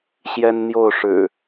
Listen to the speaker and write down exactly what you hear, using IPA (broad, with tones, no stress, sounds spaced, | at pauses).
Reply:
ɕ j ɛ˦ n n̪ j o˥˨ ʊ̯ ʂ ɻ̩˨˩